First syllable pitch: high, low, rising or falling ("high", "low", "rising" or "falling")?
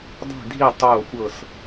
falling